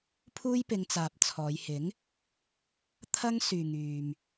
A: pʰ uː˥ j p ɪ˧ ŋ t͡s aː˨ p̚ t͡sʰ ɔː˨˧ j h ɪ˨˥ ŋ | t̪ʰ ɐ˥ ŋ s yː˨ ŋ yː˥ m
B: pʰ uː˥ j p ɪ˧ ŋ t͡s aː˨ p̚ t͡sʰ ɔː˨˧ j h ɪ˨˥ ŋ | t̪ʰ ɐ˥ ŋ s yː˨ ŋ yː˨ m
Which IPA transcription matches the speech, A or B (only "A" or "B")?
B